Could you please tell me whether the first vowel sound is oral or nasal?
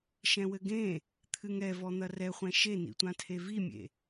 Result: nasal